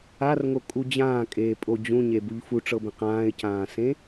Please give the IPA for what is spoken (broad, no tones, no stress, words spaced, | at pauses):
arŋokʼu d͡ʑãːkʼeːpʼo d͡ʑũɲebuʎ fuʈ͡ʂɤbẽq ãːɪ̯cãːsẽ